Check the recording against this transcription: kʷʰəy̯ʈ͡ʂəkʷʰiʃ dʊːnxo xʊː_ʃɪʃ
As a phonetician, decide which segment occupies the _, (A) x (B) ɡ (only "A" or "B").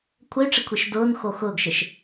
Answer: B